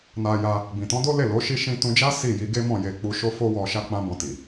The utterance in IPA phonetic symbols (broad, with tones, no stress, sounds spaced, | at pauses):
n a˧ j a˧ | b ĩ˨ t ɔ̃˨˦ d o˦ l e˦˨ l o˨˦ ʃ i˦ ʃ ĩ˦ t ũ˧ d͡ʒ a˦ s i˦˨ j i˨˦ ɡ e˦ m ɔ̃˦˨ j e˧ k͡p u˧ ʃ o˦ f o˦ w ɔ˧ ʃ a˦ k͡p ã˦ b ɔ̃˧ t i˨